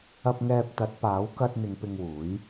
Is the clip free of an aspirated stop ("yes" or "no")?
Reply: yes